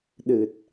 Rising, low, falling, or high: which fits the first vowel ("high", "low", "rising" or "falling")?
low